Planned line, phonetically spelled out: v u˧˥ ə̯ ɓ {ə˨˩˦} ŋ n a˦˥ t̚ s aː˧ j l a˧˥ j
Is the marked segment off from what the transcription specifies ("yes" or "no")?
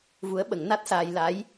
no